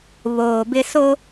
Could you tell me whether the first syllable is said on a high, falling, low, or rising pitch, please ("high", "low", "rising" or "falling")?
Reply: low